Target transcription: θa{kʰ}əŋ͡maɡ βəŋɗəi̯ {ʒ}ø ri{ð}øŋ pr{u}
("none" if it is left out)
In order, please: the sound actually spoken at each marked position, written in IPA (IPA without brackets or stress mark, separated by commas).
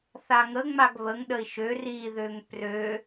ŋ, ʃ, ð, ø